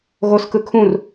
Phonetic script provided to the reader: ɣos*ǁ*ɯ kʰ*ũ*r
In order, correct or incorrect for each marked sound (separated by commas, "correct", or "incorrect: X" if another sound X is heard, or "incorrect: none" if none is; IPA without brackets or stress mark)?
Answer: incorrect: k, correct